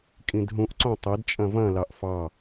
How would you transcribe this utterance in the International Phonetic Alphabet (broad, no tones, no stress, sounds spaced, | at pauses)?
kʼ ĩ d ɦ ũ ʔ ǀ õ tˤ ɘ d t͡ʃʼ ɐ̃ v ɐ̃ l ɑ ʔ f ɑ